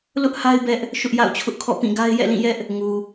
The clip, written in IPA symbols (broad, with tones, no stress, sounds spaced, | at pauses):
l ʊ˦ ʔ h a˦ ɪ̯ b ɛ˦ ʔ | ʃ ʊ˦ ʔ j a̰˦˨ ʊ̯ t͡ɕʰ ʊ˦ ʔ kʰ ɔ̰˦˨ p ĩ˦˨ ɡ a˦ ɪ̯ j ɛ̰˦˨ l ĩ˦˨ j ɛ˦ ʔ | ŋ u˨